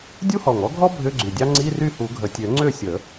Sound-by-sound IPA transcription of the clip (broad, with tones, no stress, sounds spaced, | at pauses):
dʲ u˥ h ɔ˨˩ ŋ ɔ˥ ɡʱ ɔ˥ bʱ ʏ˧˥˧ ɡ͡ǀ y˨˩ dʲ ɑ˥ ŋ͡ǀ i˧˥˧ r y˥˨ h u˨˩˦ ɡʱ ə˨˩ tʲ ø˨˩˦ ŋ͡ǀ ø˥˨ sʲ ə˨˩˦